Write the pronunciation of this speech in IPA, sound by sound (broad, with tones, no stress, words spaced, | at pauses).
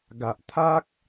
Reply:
ɡa˨ʔt̪ʰa˦k̚